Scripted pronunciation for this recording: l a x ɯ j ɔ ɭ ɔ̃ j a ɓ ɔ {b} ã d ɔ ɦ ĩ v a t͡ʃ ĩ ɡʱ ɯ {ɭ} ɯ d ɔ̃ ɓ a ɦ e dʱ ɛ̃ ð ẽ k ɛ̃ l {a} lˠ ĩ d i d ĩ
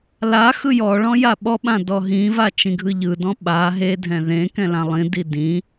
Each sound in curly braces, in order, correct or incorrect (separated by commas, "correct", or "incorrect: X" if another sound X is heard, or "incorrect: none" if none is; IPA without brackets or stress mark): incorrect: ɓ, incorrect: ʎ, incorrect: ã